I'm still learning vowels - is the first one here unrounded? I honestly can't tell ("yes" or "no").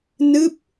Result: yes